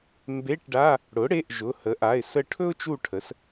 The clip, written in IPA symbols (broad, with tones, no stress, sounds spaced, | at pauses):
m b e˧˥˧ ʈ ɖ a˧˥˧ | ɽ ʊ˩˥ ɽ e˩˧˩ ʔ ʒ ʊ˩˧˩ h ə˩˥ ʔ a˩˧˩ ɪ̯ s ə˦˨ ʈʰ ɵ˥ ʊ̯ t͡ʃ u˦˨ ʈʰ ə˩˥ s